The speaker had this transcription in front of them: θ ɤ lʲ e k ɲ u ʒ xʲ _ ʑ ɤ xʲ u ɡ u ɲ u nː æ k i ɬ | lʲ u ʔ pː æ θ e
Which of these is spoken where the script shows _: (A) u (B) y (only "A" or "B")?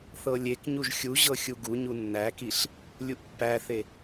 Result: A